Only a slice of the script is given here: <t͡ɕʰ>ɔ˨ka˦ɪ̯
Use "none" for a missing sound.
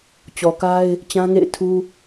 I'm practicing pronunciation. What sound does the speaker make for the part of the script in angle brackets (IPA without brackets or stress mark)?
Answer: t͡ɕ